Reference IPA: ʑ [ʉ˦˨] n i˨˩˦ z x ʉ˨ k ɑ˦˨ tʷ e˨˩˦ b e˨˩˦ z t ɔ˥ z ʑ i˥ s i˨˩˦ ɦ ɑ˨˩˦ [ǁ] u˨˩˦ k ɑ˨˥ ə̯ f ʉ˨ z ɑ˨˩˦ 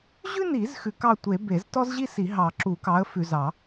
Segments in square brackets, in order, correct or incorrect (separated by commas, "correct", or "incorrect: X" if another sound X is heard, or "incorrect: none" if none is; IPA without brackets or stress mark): incorrect: ʉ˥, correct